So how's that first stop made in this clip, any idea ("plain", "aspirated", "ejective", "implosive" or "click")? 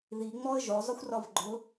click